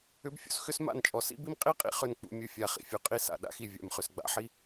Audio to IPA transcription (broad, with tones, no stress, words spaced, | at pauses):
ʏ˦bfʲṵ˦sxʏ˦sma̰˦˨n t͡ʃʼɔ˨sḭ˦bi˦m qʼi˦qʼḭ˨ χʏ˦˨nk͡pṵ˨mʲu˨ fʲa˨ χḭ˨fʲu˨qʼi˦ sa̰˨ɗa̰˦xi˨ vʲa̰˨m χʏ˨sɡ͡ba̰˦ħi˦